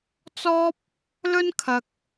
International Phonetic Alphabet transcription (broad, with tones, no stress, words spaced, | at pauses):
t͡sɔː˥p̚ | lɵ˥n kʰɐ˧k̚